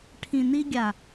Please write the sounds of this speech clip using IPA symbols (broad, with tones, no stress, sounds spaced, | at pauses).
ʈʰ ĩ˨ n i˧ ɡʲ a˨